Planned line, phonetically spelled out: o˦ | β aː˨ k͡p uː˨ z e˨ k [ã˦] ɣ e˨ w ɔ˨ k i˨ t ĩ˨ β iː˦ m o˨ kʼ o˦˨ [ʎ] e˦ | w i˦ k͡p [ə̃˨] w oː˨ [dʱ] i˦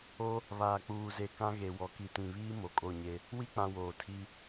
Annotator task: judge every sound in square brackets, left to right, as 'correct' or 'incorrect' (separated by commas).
correct, incorrect, incorrect, incorrect